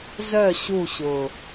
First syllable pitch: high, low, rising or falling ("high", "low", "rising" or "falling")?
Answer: falling